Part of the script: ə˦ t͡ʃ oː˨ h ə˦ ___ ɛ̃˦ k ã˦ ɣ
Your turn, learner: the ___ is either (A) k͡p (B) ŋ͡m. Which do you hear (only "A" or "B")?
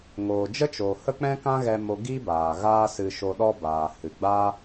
A